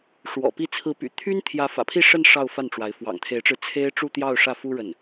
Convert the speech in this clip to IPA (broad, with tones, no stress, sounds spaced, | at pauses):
ʂ w ɔ̰˨˩ p i˧˥ t͡sʰ ɹ̩˧˥ p y̰˨˩ t̪ʰ y˥ n t̪ʰ j ä˧˥ f ä̰˨˩ pʰ i˥˧ ʂ ə˥˧ n ʂ ɑ˥˧ ʊ̯ f a˥˩ n ʈ͡ʂ w a˧˥ ɪ̯ f w ɑ̰˨˩ ŋ t̪ʰ e˧˥ ɪ̯ ʈ͡ʂ ɻ̩˧ t͡sʰ e˥ ɪ̯ ʈ͡ʂ u˥˧ t̪ j ɑ˥˧ ʊ̯ ʂ ä˥˩ f u˥ ɻ ə˥˩ n